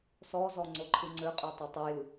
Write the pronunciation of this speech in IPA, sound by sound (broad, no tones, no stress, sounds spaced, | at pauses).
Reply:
s ɔ z ɔ ŋ͡ǀ o ǃʰ ɯ ŋ͡ǀ ø qʼ ø tˤ ɯ tˤ ɯ j ɯ